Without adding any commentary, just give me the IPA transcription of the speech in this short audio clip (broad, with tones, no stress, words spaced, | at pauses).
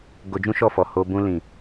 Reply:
ɡo˧d͡ʒũ˦ʃɔ˦˨fɔ˨ ho˧ bũ˧lĩ˨